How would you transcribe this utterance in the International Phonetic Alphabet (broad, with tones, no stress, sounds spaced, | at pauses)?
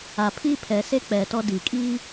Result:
a˨ pʰ iː˦ pʰ ɛ˨ s e˦ k͡p ɛ˨ t ɔ˦ d iː˨ kʼ iː˦